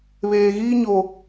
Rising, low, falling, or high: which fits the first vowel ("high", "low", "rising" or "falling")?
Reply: low